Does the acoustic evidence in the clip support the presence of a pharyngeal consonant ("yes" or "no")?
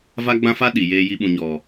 no